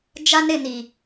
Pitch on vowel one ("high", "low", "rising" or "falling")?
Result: high